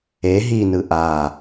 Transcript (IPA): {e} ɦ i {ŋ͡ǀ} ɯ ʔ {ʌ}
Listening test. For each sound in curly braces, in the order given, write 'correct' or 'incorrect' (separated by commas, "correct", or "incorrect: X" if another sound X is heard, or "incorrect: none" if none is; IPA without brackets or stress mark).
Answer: correct, incorrect: n, incorrect: a